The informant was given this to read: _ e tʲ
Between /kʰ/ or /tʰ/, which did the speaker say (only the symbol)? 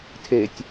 tʰ